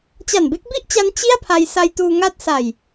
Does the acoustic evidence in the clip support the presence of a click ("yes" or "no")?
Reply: no